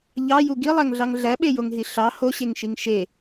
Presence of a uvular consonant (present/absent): absent